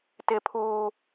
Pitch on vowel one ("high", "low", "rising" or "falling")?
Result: high